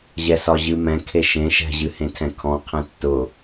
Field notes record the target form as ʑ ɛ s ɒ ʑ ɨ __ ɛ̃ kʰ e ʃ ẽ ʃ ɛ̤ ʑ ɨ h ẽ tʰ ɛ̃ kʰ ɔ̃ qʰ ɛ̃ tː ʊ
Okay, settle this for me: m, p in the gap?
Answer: m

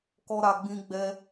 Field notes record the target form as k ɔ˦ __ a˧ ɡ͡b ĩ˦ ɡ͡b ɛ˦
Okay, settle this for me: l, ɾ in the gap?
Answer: ɾ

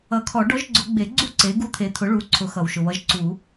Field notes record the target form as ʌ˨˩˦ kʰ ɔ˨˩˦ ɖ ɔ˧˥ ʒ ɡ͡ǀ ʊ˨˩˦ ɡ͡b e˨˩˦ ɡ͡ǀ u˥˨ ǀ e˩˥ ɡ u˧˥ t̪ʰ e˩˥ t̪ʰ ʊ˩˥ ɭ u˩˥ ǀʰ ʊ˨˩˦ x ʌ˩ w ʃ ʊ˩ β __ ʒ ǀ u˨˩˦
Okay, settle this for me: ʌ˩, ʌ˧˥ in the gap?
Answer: ʌ˧˥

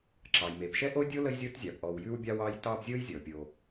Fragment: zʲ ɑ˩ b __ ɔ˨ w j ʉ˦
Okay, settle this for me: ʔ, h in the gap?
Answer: ʔ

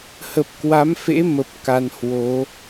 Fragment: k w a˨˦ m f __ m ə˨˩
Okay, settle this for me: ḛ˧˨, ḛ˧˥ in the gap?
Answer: ḛ˧˥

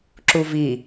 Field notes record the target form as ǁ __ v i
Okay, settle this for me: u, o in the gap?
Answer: u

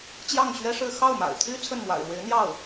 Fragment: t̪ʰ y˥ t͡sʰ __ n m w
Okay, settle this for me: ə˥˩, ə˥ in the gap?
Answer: ə˥˩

